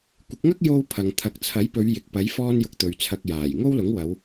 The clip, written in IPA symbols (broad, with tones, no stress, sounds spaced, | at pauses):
kʷ ɪ˨˥ k̚ ŋ ɐ˥ k̚ j o˧ w pʰ ɐ˨ ŋ t̪ʰ ɐ˨ k̚ t͡sʰ ɐ˨˥ j p ɵ˨˧ ɥ j ɪ˨ k̚ p ɐ˨˥ j f ɔː˥ n j ʊ˧ k̚ t̪ ɵ˨ ɥ t͡sʰ ɐ˧ k̚ j aː˨˩ j ŋ o˥ w l ʊ˨˥ ŋ w ɐ˨˧ w